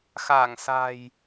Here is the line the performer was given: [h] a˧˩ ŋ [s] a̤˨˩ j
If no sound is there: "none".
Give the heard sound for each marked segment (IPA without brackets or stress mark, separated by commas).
x, s